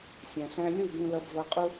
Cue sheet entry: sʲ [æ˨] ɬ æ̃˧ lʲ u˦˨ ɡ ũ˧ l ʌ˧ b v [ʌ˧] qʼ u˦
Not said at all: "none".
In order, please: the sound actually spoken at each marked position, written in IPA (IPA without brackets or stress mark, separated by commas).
æ̃˨, ʌ˧